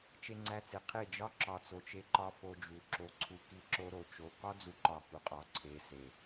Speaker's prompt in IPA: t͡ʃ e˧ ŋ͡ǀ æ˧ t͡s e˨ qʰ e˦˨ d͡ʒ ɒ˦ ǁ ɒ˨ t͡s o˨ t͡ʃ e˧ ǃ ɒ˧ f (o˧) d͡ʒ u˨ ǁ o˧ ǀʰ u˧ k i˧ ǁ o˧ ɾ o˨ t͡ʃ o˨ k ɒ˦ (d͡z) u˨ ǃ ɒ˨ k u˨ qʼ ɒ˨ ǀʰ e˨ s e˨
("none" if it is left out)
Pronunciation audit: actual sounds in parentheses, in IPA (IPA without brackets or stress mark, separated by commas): o˧, d͡z